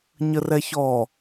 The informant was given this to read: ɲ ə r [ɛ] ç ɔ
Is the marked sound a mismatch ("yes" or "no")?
no